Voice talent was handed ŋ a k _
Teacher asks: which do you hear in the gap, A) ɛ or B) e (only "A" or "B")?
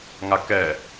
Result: A